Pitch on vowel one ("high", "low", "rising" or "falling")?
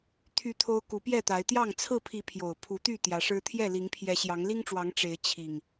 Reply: high